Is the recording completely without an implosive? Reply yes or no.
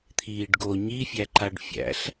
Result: yes